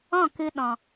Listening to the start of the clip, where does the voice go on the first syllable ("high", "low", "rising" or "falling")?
falling